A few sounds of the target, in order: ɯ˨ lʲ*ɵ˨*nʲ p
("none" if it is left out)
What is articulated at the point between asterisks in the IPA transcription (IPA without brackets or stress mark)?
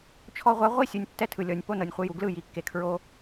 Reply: ɔ˨